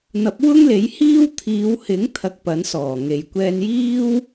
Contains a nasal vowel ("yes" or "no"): no